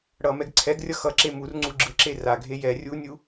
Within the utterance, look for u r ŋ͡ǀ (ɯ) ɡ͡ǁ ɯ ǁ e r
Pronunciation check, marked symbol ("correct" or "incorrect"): incorrect